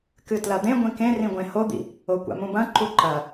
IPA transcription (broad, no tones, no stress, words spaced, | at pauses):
kɨtlɐd̪ẽ ɡʷĩkẽ rĩɡʷẽhod̪ḭ | okʷa̰mũbɐ̃ ǃuǃɐ